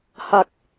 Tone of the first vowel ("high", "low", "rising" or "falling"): low